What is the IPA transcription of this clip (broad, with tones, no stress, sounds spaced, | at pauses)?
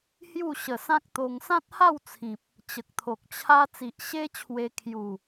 h j u˥˧ ɕ ə˨˩ s ã˦ k̚ t̪ o˧ ŋ s ã˦ t̚ h a˥˧ w t͡sʰ ĩ˨ p̚ | t͡ɕ ə˨ k̚ t̪ʰ o˨ k̚ t͡ɕʰ a˦ t͡s i˨ ʔ ɕ e˦ t͡ɕʰ w e˧ kʰ j u˥˧